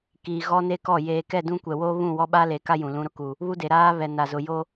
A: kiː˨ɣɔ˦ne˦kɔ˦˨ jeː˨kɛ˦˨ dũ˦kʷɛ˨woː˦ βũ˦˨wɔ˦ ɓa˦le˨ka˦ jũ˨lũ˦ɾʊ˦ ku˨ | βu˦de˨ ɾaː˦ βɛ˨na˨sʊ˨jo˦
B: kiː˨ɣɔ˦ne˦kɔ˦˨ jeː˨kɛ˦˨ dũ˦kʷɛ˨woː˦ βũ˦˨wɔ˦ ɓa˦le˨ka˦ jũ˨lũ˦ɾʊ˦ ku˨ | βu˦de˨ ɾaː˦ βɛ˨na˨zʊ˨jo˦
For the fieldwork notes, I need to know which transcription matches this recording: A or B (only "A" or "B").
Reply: B